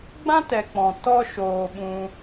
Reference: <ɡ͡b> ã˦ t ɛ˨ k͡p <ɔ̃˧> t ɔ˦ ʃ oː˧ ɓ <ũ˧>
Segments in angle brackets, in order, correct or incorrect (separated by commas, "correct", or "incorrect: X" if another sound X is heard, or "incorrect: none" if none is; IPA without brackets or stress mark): correct, incorrect: ɔ̃˨, correct